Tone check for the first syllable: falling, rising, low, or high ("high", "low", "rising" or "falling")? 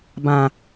low